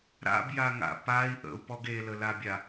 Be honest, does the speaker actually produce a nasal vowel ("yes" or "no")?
no